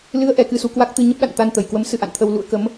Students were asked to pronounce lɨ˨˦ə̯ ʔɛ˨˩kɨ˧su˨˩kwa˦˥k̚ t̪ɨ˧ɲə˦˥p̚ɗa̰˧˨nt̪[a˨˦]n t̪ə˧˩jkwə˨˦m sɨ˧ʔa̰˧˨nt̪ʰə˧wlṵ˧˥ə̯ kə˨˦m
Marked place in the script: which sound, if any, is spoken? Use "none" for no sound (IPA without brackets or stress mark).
a˧